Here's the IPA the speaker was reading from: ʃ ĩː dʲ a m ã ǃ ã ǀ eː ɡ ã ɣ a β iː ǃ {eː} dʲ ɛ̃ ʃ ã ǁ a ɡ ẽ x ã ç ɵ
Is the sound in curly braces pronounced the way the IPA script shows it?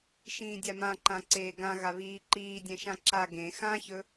no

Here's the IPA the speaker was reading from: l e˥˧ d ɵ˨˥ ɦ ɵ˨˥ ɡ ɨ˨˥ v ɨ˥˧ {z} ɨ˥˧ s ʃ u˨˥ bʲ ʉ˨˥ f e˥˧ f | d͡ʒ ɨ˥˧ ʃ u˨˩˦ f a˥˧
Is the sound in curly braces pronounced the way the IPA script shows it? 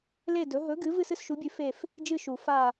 no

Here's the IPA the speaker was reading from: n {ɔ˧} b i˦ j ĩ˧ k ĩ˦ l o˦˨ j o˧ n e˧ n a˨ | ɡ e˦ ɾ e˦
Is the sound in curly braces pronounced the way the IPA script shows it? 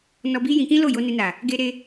yes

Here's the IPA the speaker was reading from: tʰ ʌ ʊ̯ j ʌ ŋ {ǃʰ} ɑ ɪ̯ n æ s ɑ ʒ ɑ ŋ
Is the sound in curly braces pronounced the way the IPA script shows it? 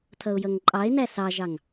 no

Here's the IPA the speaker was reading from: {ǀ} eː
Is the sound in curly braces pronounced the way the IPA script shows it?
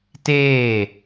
no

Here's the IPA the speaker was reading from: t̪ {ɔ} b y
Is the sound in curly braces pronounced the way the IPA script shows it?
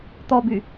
yes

